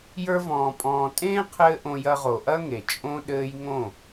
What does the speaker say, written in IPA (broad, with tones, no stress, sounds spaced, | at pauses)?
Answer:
j ə˞˧ v ɔ̃ː˨ pʼ ɔ̃ː˨ tʼ ẽː˦ qʰ ɘː˦ ʔ õ˧ j ɐ˧ ʁ o˨ ʔ ɐ˦ ŋ e˨ t͡ʃʼ õ˦ ɗ ɘː˦ j ŋ õ˦˨